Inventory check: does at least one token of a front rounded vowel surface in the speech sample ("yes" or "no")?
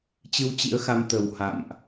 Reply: no